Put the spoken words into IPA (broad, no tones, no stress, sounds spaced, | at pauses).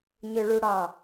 ɲ ø ɭ u ɽ ɑ